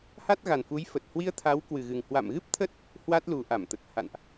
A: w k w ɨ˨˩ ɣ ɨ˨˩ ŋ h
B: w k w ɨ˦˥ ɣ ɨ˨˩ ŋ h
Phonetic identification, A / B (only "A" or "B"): A